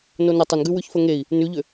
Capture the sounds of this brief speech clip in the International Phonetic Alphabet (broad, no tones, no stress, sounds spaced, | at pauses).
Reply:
n o n ə tˤ ə n ɡ ʉ w ʉ ç f ə ŋ e i̯ | n ʉ ʎ ʏ